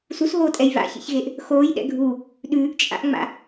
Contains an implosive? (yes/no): yes